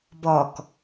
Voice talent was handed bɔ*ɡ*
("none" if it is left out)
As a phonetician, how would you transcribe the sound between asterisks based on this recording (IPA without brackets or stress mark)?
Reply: k